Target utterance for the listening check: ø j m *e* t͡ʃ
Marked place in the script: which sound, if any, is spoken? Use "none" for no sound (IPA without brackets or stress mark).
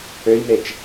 e